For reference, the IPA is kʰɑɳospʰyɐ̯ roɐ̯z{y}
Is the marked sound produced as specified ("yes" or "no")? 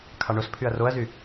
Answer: yes